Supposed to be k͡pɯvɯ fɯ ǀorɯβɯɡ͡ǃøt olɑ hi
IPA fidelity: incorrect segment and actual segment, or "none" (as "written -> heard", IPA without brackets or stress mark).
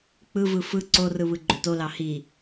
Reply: none